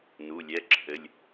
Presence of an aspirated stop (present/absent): present